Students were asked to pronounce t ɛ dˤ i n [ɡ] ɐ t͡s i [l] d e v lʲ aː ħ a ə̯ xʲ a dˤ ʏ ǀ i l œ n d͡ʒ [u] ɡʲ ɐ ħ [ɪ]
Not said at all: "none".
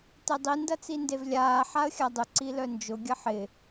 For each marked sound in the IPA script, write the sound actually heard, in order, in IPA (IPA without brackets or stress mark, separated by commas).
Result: d, n, ʊ, ɪ